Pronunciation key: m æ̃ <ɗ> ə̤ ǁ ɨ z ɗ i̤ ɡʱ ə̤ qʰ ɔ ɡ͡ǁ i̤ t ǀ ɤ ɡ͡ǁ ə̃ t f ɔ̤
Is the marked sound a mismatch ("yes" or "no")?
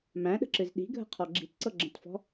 no